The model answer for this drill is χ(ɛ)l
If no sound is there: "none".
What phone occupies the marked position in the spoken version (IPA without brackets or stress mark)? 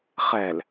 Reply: ɛ